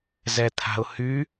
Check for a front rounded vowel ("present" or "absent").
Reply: present